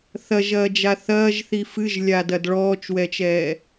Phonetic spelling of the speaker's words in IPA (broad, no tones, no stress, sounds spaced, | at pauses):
θ ɐ ʒ ɐː d͡ʒ a θ ɐː ʒ θ i f ɨ ʒ lʲ a d ɐ d ɭ ɔː t͡ʃ w ɛ t͡ʃ ɛː